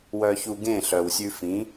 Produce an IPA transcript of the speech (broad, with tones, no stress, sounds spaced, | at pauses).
w œ˧ ç u˧ ɡ ẽ˦˨ ɬ œ˨ w sʲ ʉ˧ f ĩ˨˦